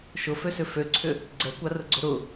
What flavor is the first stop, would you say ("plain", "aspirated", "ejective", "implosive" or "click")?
click